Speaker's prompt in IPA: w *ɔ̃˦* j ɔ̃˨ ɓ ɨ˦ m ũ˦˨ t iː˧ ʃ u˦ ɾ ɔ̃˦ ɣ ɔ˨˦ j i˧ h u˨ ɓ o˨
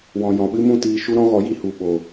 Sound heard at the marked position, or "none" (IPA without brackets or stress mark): ɔ̃˨